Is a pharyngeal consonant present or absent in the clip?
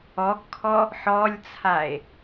present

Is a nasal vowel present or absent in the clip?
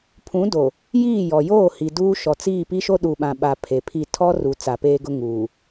present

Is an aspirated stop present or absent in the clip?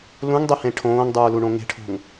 present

